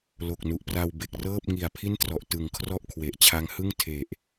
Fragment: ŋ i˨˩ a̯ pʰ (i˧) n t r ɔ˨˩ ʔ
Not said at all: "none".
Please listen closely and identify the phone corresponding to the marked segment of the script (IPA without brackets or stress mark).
i˥˩